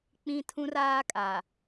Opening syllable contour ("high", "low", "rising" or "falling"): high